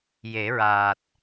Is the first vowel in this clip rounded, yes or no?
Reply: no